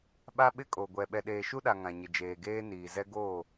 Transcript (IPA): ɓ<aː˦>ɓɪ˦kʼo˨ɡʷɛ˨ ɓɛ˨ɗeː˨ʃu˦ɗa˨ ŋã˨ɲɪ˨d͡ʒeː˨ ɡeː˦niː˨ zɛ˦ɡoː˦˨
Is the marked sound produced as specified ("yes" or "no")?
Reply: no